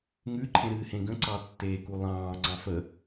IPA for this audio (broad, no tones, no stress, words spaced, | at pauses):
ŋʉǃʰẽ ɾɨːhẽɡə̃ǀɑ tːeːkulˠɑ̃ːŋ͡ǀɑ̃ fə